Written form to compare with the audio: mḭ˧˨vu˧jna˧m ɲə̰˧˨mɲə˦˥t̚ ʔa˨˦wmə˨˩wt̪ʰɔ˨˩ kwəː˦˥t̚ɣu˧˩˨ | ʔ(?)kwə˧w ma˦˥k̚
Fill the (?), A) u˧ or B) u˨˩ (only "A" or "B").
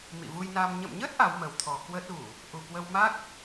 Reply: B